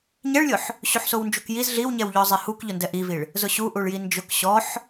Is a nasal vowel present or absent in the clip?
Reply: absent